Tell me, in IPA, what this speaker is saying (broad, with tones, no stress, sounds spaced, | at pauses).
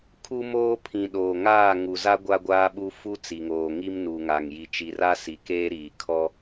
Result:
kʰ u˦ m oː˦ pʰ ĩ˨ ɗ oː˨ ŋ aː˦˨ ŋ u˨ z a˦ ɡʷ a˦ ɡʷ aː˦ ɓ u˦ f u˦ t͡s i˨ ŋ oː˨ ŋ i˦ m n u˨ ŋ a˨ ŋ j i˨ t͡ʃ i˨ r a˦ s i˨ k eː˦ ɾ iː˨ kʰ ɔ˦